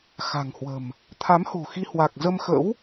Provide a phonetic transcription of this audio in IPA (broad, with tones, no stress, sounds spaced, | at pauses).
x a̤˨˩ ŋ h w ə̤˨˩ m | t̪ʰ a˨˦ m h o̤˨˩ x i˧ h w a˨˩ k̚ z ə˧ m x ə̰˧˥ w